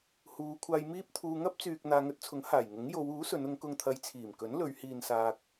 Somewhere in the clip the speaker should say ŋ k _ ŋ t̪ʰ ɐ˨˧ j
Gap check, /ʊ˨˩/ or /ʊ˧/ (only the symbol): ʊ˧